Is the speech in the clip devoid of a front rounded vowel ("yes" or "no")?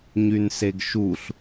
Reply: no